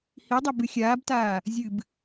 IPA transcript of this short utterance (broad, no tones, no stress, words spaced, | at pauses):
hidˤɐ bɨxʲaːbtaː | zʲɨb